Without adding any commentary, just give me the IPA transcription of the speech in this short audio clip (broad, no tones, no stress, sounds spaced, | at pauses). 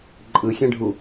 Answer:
ǃʼ ɯ xʲ ẽ ɖʱ u